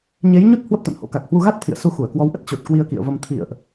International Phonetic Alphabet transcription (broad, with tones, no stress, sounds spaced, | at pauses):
ɲ e˨˦ j ɲ u˦˥ t̚ h w ə˦˥ p̚ t̪ a̰˧˨ n h o̰˧˥ k a˨˩ k̚ h w u˧ ɣ a˦˥ t̚ t̪ʰ ḭ˧˨ ə̯ s u˧ x u˧˩ ə̯ k w ɔ˨˦ w ʔ ə˦˥ t̚ t͡ɕ o˨˩ t̚ k w i˧ ə̯ k ḭ˧˨ ə̯ v ə˧ m t̪ʰ ḭ˧˨ ə̯ ʔ